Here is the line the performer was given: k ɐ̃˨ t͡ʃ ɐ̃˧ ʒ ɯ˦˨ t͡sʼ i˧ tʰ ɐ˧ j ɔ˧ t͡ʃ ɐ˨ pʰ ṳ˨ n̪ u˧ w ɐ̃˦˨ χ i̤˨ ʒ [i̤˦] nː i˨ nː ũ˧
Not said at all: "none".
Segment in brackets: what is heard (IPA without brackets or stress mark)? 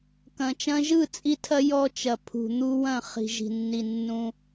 i̤˨